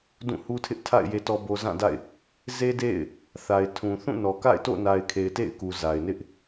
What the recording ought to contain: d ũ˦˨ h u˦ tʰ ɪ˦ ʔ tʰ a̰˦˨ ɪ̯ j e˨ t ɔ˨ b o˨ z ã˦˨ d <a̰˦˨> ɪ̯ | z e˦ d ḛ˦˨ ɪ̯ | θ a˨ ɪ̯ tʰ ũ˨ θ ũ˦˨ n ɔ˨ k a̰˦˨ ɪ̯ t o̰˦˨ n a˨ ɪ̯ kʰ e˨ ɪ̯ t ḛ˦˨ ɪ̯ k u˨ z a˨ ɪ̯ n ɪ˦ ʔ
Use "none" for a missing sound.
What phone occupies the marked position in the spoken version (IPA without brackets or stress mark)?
a̰˦˨